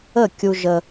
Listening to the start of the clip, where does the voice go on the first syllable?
falling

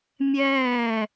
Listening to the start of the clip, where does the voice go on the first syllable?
falling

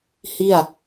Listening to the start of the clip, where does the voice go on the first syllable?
falling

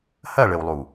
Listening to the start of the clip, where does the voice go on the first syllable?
falling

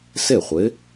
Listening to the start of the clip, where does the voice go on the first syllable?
falling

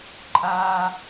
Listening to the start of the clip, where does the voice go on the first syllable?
low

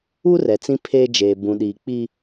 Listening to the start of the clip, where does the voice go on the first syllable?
high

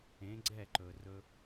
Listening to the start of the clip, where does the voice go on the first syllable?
rising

